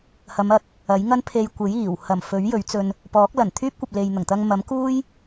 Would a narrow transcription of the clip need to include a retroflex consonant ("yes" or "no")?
no